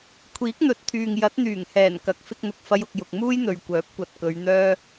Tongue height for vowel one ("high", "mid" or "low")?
high